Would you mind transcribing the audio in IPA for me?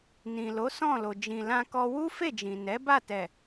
n ĩ˨ l o˨˦ s ɔ̃˦˨ l o˨ d͡ʒ ĩ˨ l ã˧ k ɔ˧ w u˦ f e˦˨ d͡ʒ ĩ˨ n ɛ˨˦ b a˦˨ t ɛ˨

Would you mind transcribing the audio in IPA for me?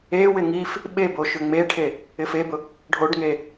e w ɪ ŋ i f | ɓ e b o ʃ ʏ ŋ͡m e ʈʰ e | ɪ f e b ʊ | ɖʱ o ɖ ŋ e

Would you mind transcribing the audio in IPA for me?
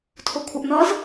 tʰ o kʷʰ ʌ ʔ n ʌ z

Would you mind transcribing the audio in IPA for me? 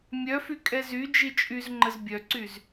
mʲ œ f y kʼ ɛ z y d͡ʒ i t͡ʃʼ y z ŋ͡ǃ ə z bʲ œ ǀ y z

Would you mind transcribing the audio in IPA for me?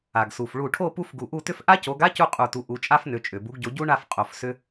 a˩ ɡ s u˩ f ɭ u˧˩ ʈʰ o˥˧ p u˥ f ɡ u˧˩ ʔ u˥˧ t ʏ˥ f ʔ a˥ c o˨˦ ɡ a˥ c u˥˧ qʼ u˧˩ t u˨˦ ʔ u˨˦ t͡ʃʼ a˥ f n ʏ˨˦ t͡ʃʼ ʏ˩ b u˨˦ ɡ ɟ o˨˦ ɟ u˥ ɳ a˥˧ f qʼ o˧˩ f s ʏ˥

